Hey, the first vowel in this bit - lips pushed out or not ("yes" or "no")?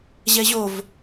no